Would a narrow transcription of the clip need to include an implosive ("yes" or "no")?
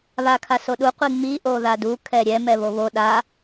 yes